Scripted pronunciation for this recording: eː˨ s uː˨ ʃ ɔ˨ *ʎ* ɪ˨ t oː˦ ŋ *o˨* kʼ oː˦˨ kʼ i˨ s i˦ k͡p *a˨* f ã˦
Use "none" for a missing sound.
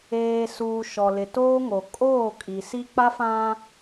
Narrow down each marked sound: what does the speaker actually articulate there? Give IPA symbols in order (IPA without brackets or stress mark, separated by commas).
l, o˨, a˦